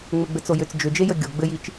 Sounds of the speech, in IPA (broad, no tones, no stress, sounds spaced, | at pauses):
ŋ͡m ɘ ɡ͡b ɘ t͡s o j ʏ t͡s d͡ʒ ʏ d͡ʒ e j ə ɡʲ o ɡ͡b ɘ j i t͡ʃ